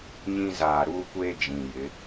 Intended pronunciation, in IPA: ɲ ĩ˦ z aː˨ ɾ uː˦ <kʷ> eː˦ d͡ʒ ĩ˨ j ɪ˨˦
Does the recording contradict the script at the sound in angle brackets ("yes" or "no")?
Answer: no